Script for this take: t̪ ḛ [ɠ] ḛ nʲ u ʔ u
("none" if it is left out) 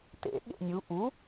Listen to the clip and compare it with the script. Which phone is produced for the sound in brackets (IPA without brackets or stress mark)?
ɠ